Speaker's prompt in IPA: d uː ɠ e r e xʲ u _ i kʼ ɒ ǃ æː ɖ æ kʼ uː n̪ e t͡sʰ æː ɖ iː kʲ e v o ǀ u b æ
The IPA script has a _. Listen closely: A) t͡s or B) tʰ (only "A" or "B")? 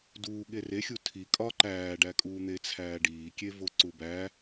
B